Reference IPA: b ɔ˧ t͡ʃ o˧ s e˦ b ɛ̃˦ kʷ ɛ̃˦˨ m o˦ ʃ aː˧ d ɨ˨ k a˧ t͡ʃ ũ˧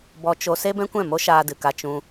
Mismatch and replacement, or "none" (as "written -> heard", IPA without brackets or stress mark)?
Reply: none